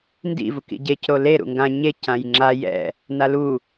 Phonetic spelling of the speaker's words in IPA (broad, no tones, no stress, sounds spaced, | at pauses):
n d ḭ v u k ḭ ɟ e c ɾ o l e ɾ ṵ ŋ ɡ ã ɲ e c ã j ŋ͡ǁ a j ɛ̰ | n a l u